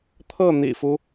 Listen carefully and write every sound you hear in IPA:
t̪ʰ ɤ˥˩ n̪ ḭ˨˩ f u˦

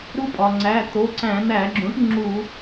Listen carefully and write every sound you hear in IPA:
ɾ u˦˥ pʼ ɒ˩ ŋ͡ǀ æ˩˧˩ t̪ o˩˧˩ ǀ æ̃˧˩˧ n̪ æ˧˩˧ ɡ͡ǁ ũ˩˥ ʈ ŋ͡ǁ u˧˩˧

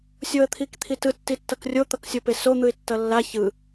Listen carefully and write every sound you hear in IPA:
sʲ o ə̯ t̪ʰ i k t̪ʰ i t ɯ tː i tː ʌ k rʲ o t̪ ʌ k sʲ o p e s o n̪ ɯ ɪ̯ tː ʌ lː a ç ɯ

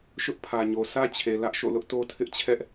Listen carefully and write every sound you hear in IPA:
ʃ ʊ˦ ʔ pʰ ä˨ ɲ o˨ s ä˦ t͡ɕʰ e˨ l ä˦ ʔ ʃ o̰˦˨ l ʊ˦ ʔ t o˦ tʰ ɪ˦ ʔ t͡ɕʰ ɛ˦ ʔ

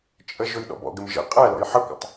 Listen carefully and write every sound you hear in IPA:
t͡ʃʼ ə ʒ ʊ j ɗ ɔ̰ b ɔ̰ ɡ ɪ m ʒ ə̰ qʼ æ l ɔ̰ j ħ ə kʷ ə̰ tˤ

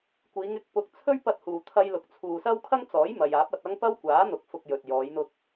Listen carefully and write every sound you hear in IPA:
kʷ iː˨˧ ŋ ɪ˨˥ k̚ p ʊ˧ k̚ t͡sʰ ɵ˥ ɥ p ɐ˧ t̚ h uː˨ t̪ʰ ɐ˧ j l ʊ˨ k̚ t͡sʰ uː˨ s ɐ˥ w kʰ ɐ˥ ŋ t͡s ɔː˨˥ j m ɐ˨ j aː˨˥ p̚ ɐ˧ t̚ ɐ˥ ŋ p ɐ˥ w kʷ aː˨˥ n̪ ʊ˨˥ k̚ f ʊ˧ k̚ j ɵ˨ t̚ j ɔː˨˧ j n̪ ʊ˧ k̚

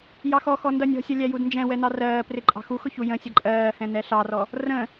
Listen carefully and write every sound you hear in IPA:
j ɑ x ɔ x ɔ n d ʌ nʲ ɔ̤ sʲ ʌ lʲ æ j u d n d͡ʒ ɛ̃ w ɛ n ɑ r ɜː p r ɪ ǃʼ ɑ̤ x u x ʊ ç u j ə̃ sʲ ʌ ǃʼ ɜː h ɛ̃ n ɛ ɬ ɑ r ɔ | r ə̃

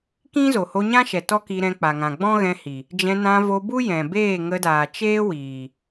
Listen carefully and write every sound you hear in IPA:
k ĩ˦ z o˨ h o˧ ɲ ã˦ ʃ ɛ˨ t ɔ˦ k i˧ ɾ ɛ̃˧ k͡p a˨ ŋ ã˨ ɡ͡b ɔ̃˦ ɣ ɛ̃˧ h i˨ | d͡ʒ ɛ̃˧ n ã˧ v o˧ b u˦ j ɛ̃˨ b eː˦˨ ŋ ə˧ d aː˨ t͡ʃ eː˦ w iː˨

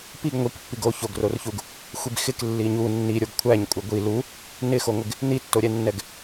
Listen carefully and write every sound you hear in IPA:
p i ɡ ŋʷ i k pː i ɡ o ç o ɡ r o r ç u ɡ | xʷ i b x ɪ k lː i ɲ u nː i ɾʲ o ɡ kʷʰ æ ɲ kʷʼ ɪ ɡʷ i l u | n ɪ x o ŋʷ ɪ ɡ | n i tː o ɾʲ ɛ nː ɛ ɡ

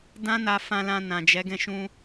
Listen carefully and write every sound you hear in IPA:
d ã˦ n a˧ f ã˧ l ã˧ n ã˨ d͡ʒ ɛ˨˦ ɡ ɛ̃˦˨ ʃ ũ˧

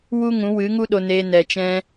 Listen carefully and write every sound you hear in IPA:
w u˦ ŋ ũ˨˦ w ɨ˨˦ ŋ u˦ ɗ o˧ n eː˧ n ɛ˨ t͡ʃ ɛ̃˧

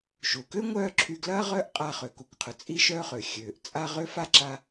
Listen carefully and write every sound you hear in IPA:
ʃ u˩ k ø˥ ŋʷ œː˥ ǁʰ y˧ ɡ l ɐː˥ ʁ œː˥ ʔ qʼ a˧ χ ø˩ k u˩ k qʰ ʊ˩ t͡sʼ i˥ ʃ œː˥ χ ø˩ xʲ øː˩ ʔ t͡sʼ a˧ ʁ ø˥ f a˥ ǁ a˧

